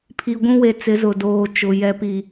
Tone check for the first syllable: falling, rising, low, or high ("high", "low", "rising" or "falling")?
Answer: low